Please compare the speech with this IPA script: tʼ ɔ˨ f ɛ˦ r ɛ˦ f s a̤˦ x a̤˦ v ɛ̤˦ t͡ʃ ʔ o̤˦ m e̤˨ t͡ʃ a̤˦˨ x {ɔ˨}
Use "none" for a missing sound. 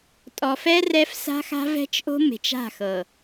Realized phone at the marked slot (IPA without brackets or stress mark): ɤ˨